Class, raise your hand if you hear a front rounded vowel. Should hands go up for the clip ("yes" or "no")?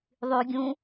yes